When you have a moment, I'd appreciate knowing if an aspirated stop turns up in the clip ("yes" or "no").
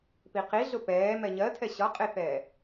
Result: yes